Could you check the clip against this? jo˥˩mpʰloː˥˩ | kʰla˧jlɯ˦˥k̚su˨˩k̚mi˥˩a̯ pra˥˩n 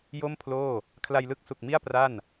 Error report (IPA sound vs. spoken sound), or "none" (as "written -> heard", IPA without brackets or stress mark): none